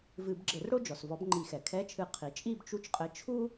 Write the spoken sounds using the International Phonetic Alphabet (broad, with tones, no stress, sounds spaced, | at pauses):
v ɨ˧˩˧ b ɡ͡ǁ ɘ˧˩˧ r ɽ o˥ d͡ʒ ɔ˩ s v ɔ˨˥ b ŋ͡ǃ i˧˩˧ x ɛ˩ kʰ ɛ˧˥˧ t͡ʃʰ ɨ˧˩˧ qʰ i˩ t͡ʃʼ i˥˧ b t͡ʃ u˧˥˧ t͡ʃ qʼ ɘ˨˥ t͡ʃʰ u˥